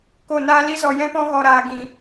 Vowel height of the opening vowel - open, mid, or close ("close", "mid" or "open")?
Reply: mid